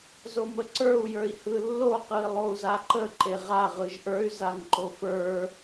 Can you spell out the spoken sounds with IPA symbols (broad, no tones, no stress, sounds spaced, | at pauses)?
z o m ə ǀ ə˞ u̯ j ə˞ i̯ h ɯ lː o q ɯ i̯ lˠ o u̯ z a ǃ ə ǃ e ʁ a ʁ ɯ ʒ ʔ ə˞ y̯ z a ŋ ǃ o f ə˞